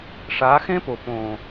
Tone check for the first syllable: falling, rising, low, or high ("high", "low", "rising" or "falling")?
rising